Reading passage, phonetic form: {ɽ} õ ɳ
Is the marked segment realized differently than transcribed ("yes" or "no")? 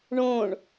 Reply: yes